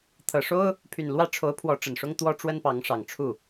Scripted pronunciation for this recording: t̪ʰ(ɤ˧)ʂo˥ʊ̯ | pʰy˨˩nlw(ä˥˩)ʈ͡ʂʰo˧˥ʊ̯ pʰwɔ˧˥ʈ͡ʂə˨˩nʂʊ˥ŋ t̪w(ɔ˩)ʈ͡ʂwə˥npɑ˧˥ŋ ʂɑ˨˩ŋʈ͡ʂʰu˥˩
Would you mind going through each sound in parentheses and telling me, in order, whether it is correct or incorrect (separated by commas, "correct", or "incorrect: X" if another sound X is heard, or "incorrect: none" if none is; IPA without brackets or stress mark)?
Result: incorrect: ɤ˨˩, correct, incorrect: ɔ˥